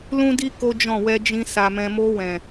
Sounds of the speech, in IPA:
lũ˦di˦ ko˦d͡ʒɔ̃˦˨ wɛ˧d͡ʒĩ˧ sa˨mɛ̃˨ mo˧wɛ̃˨

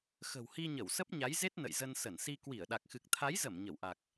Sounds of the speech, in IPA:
xə̤˨˩whi˧ ɲə˧˩wsə˦˥p̚ɲa˨˦jze˦˥t̚ nə̰˧˨jzə˧n sə˧˩nsi˧ kwi˧˩ə̯ɗa˨˩k̚xɨ˨˩k̚ t̪ʰa˨˦jzə˧˩m ɲə˧˩wʔa˨˩k̚

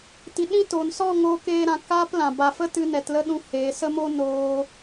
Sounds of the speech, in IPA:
ti˨ ɗĩ˦to˨n sɔ˦˨ ŋoː˧keː˧ɾã˨ kaː˦plã˨ ba˨fə˦tɨ˧ nɛ˨tlə˦ɗũ˧ he˨˦ sə˦mo˦ noː˦

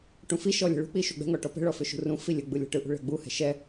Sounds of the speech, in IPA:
ʈũfiʃɔ lʲə̤ɭṳk͡pi ʃuɡ͡bɛ̤ŋɔ ʈɔpɛ̤ɭɔ fʏʃṳrũfi lʲəɡ͡bɯ lʲɔ̤ʈɯʔṳ ɭɛ̤ɡ͡buhɛ̤ ʃɛ

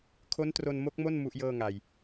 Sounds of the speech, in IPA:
kʰo˦˥ntro˧nmo˦˥k̚mo˥˩n mu˦˥ʔjɤː˥˩ŋa˨˩j

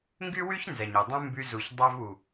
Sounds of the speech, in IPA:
ŋɡy˦wy˦ç nzɛ˨ɲe˨dˤũ˦ mby˧zu˨ç dˤœ˧vu˨

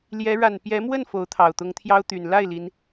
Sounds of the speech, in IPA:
ljɛ˧˥ ɻa˨˩n pjɛ˧˥mwə˥˩n fo˧˥ʊ̯t̪ʰɑ˨˩ʊ̯ t̪ʊ˧˥ŋt̪ʰjɑ˥ʊ̯t̪y˨˩n la˥˩ɪ̯ li˧˥n

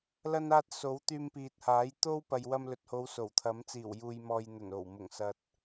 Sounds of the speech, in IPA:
lɐ˧naː˧t̚ so˨˥wt̪yː˧mpiː˨t̚ haː˨˥j t̪o˥w pɐ˨jwɐ˧mlɵ˨t̚ho˨˧w so˨˩wt̪ʰɐ˨˥m t͡siː˨˩wjuː˨jmɔː˨j n̪ɵ˨˩n o˨˩wmʊ˨˩ŋsɐ˨t̚

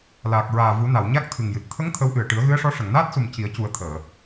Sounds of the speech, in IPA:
laː˨˩k̚ ɹaː˨˩vu˨˩˦na˨˩˨wɲa˦˥k̚ t̪ʰɨ˨˩ŋjɨ˨˩t̚ t̪ʰə˧˥ŋ t̪ʰə˧˥wʔɨ˨˩ə̯ ʈɨ˨˩˦ə̯ɣɨ˧˥ə̯ʂɔ˧˥ ʂə˨˩˨ŋnaː˦˥t̚su˨˩m ci˨˩˦ə̯cu˨˩˦ə̯t̪ʰəː˨˩˨

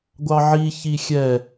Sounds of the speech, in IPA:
ɡʷɑʕiçi xʲɛ

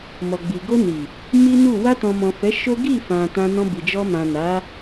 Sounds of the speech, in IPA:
mɔ˨ɡ͡bi˨ ɡo˧ni˨ | mi˦nu˦˨ wa˧tɔ̃˨ mɔ̃˨fɛ˨˦ ʃo˦ ɡi˦˨ fã˨ tã˧nɔ̃˧bi˨ d͡ʒɔ˧mã˨ na˨˦

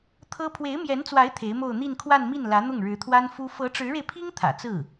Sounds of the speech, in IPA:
t̪ʰɤ˥ pʰwe˧˥ɪ̯mjɛ˧˥nt͡swa˧˥ɪ̯ t̪ʰe˧˥ɪ̯mo˥˧ʊ̯ n̪i˥˧nkʰwa˥˧nmi˥˩n lä˧˥n̪ʊ˥˩ŋɻɻ̩˧˥t̪ʰwa˥n fu˥ fɤ˧˥ʈ͡ʂɻ̩˧˥ɻe˧ɪ̯pʰi˥ŋ t̪ʰä̰˨˩t͡sɹ̩˥˩

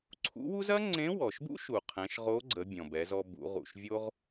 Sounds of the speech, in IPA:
ǀʰṵ˧˥wu˥z ɐ˥ ŋ͡ǀẽ˧˥wɔ˩ʃbṵ˥ ʃu˩ qʰɛ̃˩˧ʃʁo˧˥ɡ͡ǀə˩˧ bʲɔ̃˩bɛ˩˧zɔ˧ bṵ˩˧ʁṵ˩ʃ vʲo˥ʁ

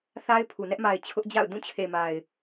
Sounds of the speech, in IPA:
θa˦ɪ̯pʰu˨ nɛ˦ʔma˨ɪ̯ t͡ɕʰʊ˦ʔd͡ʑa̰˦˨ʊ̯ dũ˦˨t͡ɕʰe˨ma˨ɪ̯

